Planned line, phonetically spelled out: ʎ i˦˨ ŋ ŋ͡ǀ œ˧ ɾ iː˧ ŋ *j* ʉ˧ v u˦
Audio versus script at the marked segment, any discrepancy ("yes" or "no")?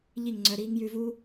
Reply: no